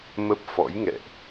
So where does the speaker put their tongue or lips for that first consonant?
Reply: lips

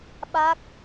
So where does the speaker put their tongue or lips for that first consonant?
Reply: lips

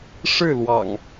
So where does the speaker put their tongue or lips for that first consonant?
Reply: retroflex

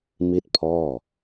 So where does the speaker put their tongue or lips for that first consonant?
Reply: lips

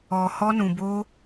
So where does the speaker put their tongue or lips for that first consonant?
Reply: throat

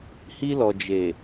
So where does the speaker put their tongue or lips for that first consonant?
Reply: throat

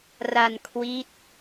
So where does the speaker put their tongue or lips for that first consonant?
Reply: tongue tip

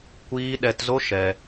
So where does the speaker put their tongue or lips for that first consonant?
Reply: velum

